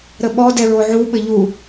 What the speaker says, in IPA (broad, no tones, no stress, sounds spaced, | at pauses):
ɾ ə ɓ ɔ d ɛ ɹ o ʕ u ɓ ɘ ʎ u